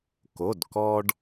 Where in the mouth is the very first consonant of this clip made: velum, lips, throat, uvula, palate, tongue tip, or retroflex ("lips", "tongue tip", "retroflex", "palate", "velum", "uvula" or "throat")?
velum